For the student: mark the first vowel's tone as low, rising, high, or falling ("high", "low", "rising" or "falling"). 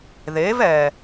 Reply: rising